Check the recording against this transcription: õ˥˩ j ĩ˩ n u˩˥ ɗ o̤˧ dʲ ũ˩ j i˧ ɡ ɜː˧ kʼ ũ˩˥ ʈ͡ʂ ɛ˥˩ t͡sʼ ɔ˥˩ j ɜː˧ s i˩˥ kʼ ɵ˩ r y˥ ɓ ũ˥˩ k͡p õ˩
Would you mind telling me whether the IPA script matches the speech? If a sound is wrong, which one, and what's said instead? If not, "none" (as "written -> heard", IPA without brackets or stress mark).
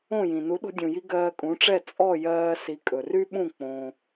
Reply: none